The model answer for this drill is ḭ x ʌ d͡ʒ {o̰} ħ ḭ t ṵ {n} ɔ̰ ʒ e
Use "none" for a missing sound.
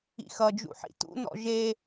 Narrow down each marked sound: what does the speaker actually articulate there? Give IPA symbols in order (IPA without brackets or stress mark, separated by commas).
ṵ, n